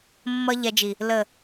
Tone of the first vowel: high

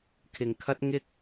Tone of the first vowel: low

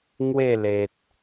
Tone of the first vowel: falling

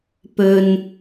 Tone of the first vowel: low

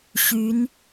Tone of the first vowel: rising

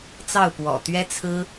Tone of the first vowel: falling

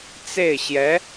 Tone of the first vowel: falling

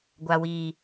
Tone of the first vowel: low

